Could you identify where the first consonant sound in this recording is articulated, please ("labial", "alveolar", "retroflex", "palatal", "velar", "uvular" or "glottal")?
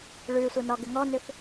retroflex